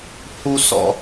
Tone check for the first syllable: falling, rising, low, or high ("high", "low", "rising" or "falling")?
high